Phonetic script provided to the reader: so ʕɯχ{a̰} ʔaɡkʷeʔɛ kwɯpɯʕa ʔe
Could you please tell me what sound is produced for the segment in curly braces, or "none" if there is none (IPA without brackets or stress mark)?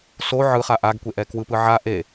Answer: a